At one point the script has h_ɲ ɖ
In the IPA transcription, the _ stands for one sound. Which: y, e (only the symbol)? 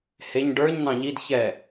e